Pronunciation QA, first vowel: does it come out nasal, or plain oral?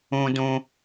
nasal